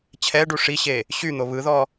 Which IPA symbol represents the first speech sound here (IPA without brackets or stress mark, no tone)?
t͡ɕʰ